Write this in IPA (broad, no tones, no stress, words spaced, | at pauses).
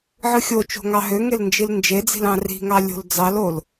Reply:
ʕɯxʲot͡ʃo̤ ŋɑɦøŋel nd͡ʒilnd͡ʒed͡zi̤l ɑ̃ri̤ŋɑ lʲo̤ld͡zɑlol